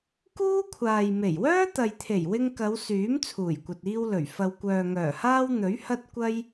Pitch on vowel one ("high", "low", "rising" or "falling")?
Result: high